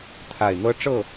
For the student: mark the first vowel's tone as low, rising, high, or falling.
low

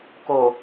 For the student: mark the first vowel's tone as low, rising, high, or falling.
low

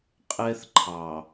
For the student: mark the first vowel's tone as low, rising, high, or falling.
high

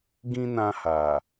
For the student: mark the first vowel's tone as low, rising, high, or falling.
high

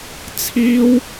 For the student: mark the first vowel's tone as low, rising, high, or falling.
high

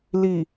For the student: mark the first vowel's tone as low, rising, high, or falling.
low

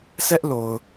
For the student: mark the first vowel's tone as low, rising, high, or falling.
high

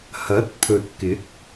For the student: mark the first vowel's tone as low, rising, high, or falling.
rising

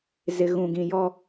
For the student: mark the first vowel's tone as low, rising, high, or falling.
low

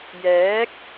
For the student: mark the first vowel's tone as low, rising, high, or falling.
rising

